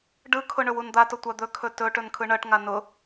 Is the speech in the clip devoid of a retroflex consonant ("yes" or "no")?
no